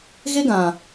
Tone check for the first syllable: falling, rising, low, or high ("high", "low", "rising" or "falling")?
high